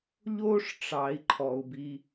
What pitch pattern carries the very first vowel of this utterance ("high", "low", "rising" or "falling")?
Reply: high